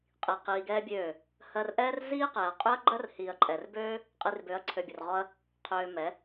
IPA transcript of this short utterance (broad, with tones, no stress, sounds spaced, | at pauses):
qʼ i˧ q iː˧ ɡ ɛː˦ bʲ øː˦˨ | h ɜ˧ r ʔ ɛː˦ r z iː˦ q ɛː˨ ɐ̯ qʼ ø˦ ɐ̯ ɡ͡ǃ ɜ˦ r h iː˨ ɐ̯ ǃʼ ɛ˨ r b øː˦ | qʼ i˧ r b ø˨˦ ɐ̯ ǀʰ ø˨ bʲ ʊ˨ r ʁ ɔ˧ ɐ̯ | qʰ øː˧ m ɛ˨˦